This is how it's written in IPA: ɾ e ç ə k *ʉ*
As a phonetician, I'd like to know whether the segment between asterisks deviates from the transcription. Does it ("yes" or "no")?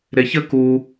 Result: yes